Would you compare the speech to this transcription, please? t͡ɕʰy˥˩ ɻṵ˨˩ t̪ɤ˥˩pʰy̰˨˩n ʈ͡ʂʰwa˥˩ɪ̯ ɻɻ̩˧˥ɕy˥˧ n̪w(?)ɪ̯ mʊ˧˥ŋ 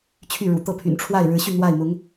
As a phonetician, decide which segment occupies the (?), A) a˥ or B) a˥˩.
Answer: B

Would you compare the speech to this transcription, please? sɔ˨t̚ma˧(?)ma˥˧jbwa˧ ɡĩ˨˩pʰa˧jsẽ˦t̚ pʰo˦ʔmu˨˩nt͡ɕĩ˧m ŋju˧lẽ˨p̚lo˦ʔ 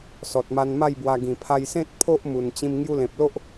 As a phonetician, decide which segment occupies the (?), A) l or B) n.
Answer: B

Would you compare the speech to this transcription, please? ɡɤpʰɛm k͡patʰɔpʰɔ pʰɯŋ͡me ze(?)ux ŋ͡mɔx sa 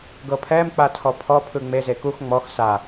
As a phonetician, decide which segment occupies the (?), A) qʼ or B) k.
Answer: B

